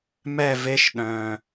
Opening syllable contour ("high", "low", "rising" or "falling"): falling